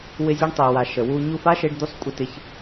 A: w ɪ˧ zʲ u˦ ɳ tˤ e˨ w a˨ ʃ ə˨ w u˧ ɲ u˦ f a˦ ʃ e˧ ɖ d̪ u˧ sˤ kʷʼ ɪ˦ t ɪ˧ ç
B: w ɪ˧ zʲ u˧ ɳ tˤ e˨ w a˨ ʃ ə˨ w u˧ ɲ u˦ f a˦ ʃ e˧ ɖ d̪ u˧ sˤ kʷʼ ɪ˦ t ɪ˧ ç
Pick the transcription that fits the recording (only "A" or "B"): B